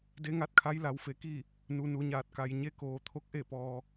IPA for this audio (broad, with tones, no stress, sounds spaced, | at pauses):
d e˧˥ ŋ a˧˥ t̚ kʰ a˧˥ j l a˩˧ w f e˩˧ k i˥˨ | n u˩˧ n u˩˧ ɲ aː˧˩ t̚ k a˩ j ɲ e˧˥ k oː˩ t̪ʰ o˧˥ k̚ ʔ e˥˨ p ɔː˩